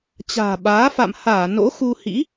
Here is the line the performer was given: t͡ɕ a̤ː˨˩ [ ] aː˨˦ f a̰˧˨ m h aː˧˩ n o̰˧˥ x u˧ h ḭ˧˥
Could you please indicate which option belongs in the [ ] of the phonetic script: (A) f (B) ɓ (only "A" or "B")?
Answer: B